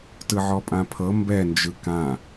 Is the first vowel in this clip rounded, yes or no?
no